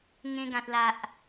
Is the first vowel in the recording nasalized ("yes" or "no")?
yes